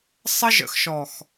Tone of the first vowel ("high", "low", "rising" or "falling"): high